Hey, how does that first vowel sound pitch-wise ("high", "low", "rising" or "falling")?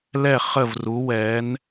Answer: falling